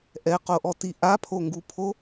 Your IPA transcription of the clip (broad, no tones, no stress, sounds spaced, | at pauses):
ʔ ɛ q o ʔ ɔ t i ʔ a pʰ o ŋ ɡ u pʰ o